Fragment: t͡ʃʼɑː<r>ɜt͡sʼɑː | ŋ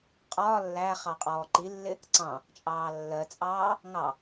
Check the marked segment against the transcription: incorrect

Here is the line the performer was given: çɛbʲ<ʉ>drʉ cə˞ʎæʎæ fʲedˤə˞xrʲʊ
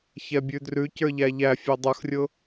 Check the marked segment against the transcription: correct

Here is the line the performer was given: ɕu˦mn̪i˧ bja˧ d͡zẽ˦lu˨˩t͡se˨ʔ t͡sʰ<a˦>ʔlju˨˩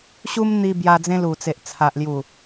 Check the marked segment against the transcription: incorrect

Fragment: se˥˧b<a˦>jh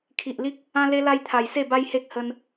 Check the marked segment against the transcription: correct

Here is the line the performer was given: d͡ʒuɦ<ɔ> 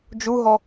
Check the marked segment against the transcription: correct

